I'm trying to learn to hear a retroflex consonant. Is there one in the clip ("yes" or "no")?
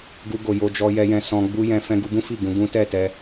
no